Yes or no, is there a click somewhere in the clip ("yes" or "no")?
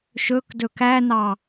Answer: no